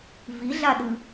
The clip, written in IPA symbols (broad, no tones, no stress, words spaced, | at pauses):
viɮaɗɯ